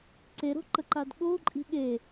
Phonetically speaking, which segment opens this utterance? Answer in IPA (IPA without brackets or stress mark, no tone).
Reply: ǀ